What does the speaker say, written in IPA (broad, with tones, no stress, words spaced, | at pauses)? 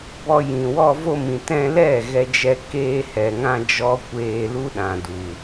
bɔ˧ jĩ˨wɔ˧vo˧mĩ˨ tɛ̃˧lɛ˦˨ ɣɛ˧d͡ʒɛ˧ keː˧hɛ˨ŋã˧ d͡ʒɔ˦kʷeː˧ lu˦ɗã˨du˨